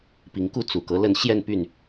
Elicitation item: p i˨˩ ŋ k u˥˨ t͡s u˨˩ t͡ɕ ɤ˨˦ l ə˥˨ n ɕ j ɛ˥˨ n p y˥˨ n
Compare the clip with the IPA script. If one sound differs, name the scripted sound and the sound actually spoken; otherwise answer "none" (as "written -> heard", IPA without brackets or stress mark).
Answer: t͡ɕ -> k